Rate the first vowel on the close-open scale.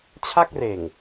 open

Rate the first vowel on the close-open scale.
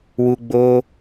close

